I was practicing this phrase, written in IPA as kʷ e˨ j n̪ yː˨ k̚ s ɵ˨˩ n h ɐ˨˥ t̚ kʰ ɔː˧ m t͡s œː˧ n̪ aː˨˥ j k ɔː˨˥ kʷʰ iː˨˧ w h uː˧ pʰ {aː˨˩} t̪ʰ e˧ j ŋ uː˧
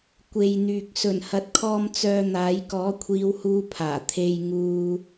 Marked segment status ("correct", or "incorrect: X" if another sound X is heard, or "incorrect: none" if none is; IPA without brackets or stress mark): correct